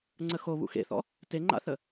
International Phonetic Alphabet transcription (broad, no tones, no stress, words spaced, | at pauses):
ŋ͡ǀəxo βṵxḛθɔ̰ | teŋ͡ǃa̰θə